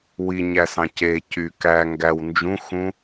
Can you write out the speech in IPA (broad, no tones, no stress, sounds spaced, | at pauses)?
w i ɲ æ s ɑ̃ c e c y k æ ŋ ɡ æ w n d͡ʒ ũ x ũ